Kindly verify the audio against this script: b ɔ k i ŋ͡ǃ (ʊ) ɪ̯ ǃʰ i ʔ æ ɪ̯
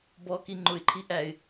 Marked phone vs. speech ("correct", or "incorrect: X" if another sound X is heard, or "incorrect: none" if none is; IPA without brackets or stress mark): correct